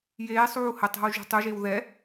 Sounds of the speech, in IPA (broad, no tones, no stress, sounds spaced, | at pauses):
j eː sˤ uː h ə tˤ ɛ̤ w ʒ ṳ tˤ u ʒ e w ð ɛ